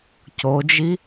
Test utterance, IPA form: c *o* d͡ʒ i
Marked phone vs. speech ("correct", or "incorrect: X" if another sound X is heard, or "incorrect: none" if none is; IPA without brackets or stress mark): correct